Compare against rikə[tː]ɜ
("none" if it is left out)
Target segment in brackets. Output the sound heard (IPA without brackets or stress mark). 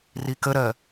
ɾ